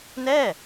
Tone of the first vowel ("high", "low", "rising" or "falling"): falling